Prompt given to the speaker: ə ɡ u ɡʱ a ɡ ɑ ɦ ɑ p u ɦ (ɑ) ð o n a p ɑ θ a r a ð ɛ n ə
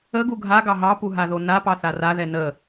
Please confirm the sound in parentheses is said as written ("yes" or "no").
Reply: no